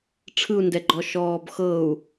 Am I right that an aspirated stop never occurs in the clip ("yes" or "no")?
no